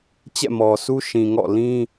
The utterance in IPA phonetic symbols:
t͡ɕ ɛ̰˦˨ m ɔ˨ sʰ u˦ ʃ ĩ˨ ŋ ɔ̰˦˨ l ĩ˦

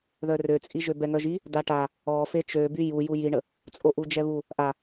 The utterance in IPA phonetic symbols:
ð œ r ø t͡sʼ i ʒ ø b ɛ ŋ œ ʒ i | d a ʈ a | ɔ f e t͡ʃ ø b y j u j u j i ɳ ə | t͡sʼ o ʔ u d͡ʒ ɛ β u | ʔ a

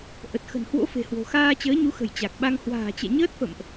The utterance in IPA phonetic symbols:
ʔ ə˨˩ t̚ x ə̤˨˩ n h w o̰˧˥ f e̤˨˩ h w o̤˨˩ x aː˧ t͡ɕ əː˨˦ ɲ u˨˦ x ə̤˨˩ j t͡ɕ a˨˩ k̚ ɓ a˧ ŋ h w a̤ː˨˩ t͡ɕ ɛ̰˧˨ ɲ əː˦˥ t̚ f ə̰˧˨ m ʔ

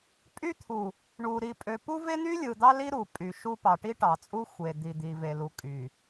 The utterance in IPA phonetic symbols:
pʼ y˦ t̪ʰ u˨ | ɳ u˨ ɾ i˨ pʼ ø˨ p u˦ v e˦ n̪ y˦ lʲ ɯ˨ d̪ ɑ˦ l i˦ ɾ u˨ pʼ y˨ ʃ u˦ p ɑ˨ ʈ i˦ ʈ ɑ˨ t͡sʼ u˦ xʷ e˨ d̪ i˨ d̪ i˨ v e˨ l u˨ kʼ y˨

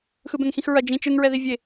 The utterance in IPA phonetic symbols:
x ɯ b ɛ̃ ŋ x ĩ x ɹ ɐ d͡ʒ ĩ t͡ʃ ɯ ŋ ɹ ɛ ð i vʲ e

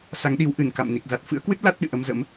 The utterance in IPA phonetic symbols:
s a˨˦ ŋ ɗ i˨˦ w ʔ ɨ˧˩ n k a̰˧˨ m n i˨˩ k̚ z a˨˩ t̚ f ɨ̰˧˥ ə̯ k w ɨ˦˥ t̚ l a˦˥ t̚ ɗ ɨ̰˧˨ ʔ ə˧ m z ə̰˧˥ m

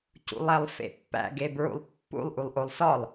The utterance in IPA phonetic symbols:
c ṵ lˠ æ lˠ f ḛ pː æ̰ ɡ e b ɹ ṵ lˠ pː ṵ lˠ ʔ u lˠ ʔ o lˠ s ɒ lˠ

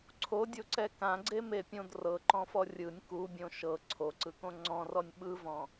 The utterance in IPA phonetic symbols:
ǀʰ o dʲ o ǀ ɛ k ã ɡ͡ǀ e m e pʲ õ d r ɤ ǃ ɔ̃ f ɔ rʲ ɯ nʲ k u bʲ õ ʃ ɤ ǀʰ o ǀ ɯ k õ ŋ͡ǀ ɔ̃ r ɔ nʲ ɓ ɯ v ɔ̃

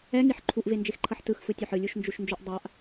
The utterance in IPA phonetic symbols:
ɛ ŋ i ħ ǃʰ u ʔ v e n d͡ʒ e x ǃʰ ʌ ħ t ɯ x f ɯ tʲ o ħ ɯ lʲ u ʃ n d͡ʒ u ʃ n d͡ʒ o ʔ dˤ a ʔ

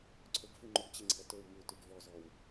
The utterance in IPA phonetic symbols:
ǀʰ ɵ ɡ f ʉ ŋ͡ǃ ɵ ɡ t͡ɕ e ŋ͡ǀ e̤ ɐ̯ t ɵ w m ʉ t ʉ ɡ v ɔ z ɔ w

